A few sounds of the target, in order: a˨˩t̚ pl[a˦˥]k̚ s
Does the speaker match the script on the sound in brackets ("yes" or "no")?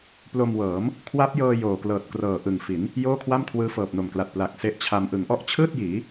no